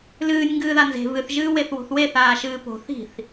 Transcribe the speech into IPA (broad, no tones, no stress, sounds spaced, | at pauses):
l ɨː nʲ ŋ ɡ ɨː ð a n z e̤ v ɨ θ ʒ ɨː w e θ w o̤ θ w e θ aː ʃ ɨː p o̤ θ i̤ θ